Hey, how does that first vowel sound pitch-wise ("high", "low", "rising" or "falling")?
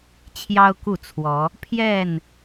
high